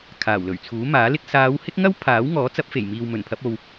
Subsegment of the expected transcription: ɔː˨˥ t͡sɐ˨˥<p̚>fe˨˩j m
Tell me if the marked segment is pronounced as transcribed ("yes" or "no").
yes